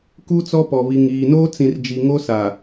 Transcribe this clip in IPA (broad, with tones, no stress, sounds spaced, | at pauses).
k u˦ t͡s ɔ˦ p ɔ˨ β i˨ ŋ iː˨ n oː˦ t͡s ĩ˨ r d͡ʒ i˨ ŋ o˦ s a˨